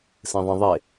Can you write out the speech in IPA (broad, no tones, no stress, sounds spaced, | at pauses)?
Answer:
s ẽ ðˤ ə̃ ðˤ e